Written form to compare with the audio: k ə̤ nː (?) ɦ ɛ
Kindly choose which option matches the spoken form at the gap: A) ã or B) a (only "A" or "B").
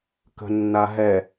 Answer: B